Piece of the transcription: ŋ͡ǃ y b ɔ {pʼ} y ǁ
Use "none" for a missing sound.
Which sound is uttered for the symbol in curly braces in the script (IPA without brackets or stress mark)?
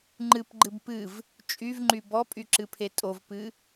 pʼ